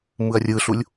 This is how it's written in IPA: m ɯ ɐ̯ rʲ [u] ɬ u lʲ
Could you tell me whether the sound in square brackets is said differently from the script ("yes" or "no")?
yes